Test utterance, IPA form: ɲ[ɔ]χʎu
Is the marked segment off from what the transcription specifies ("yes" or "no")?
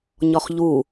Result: no